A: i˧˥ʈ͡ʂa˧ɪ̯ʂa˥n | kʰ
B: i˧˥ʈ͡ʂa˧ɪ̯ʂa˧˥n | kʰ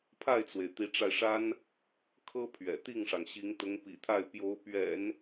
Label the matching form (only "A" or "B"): A